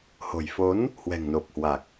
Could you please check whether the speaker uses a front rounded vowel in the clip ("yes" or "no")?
no